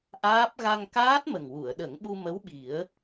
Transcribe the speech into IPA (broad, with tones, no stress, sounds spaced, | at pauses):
ʔ aː˦˥ p̚ ɣ a˧ ŋ k aː˦˥ t̚ m ə˨˩ ŋ w u˨˩˨ ə̯ ɗ ə˨˩˦ ŋ ɓ u˧ m ə˧˥ w ɓ i˨˩˦ ə̯